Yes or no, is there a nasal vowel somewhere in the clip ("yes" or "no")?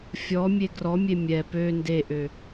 no